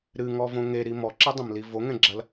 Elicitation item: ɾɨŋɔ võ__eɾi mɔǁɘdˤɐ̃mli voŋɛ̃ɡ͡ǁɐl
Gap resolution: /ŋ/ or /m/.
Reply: ŋ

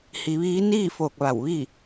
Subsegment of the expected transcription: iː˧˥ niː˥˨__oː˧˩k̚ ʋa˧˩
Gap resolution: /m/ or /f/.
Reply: f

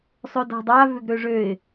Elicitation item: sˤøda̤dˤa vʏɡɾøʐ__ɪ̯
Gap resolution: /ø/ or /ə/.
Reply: ø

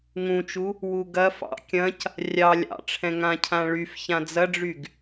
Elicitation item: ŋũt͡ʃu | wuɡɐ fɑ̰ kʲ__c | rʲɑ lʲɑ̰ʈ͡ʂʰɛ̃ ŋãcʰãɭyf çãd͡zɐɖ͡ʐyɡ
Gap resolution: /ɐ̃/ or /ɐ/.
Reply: ɐ̃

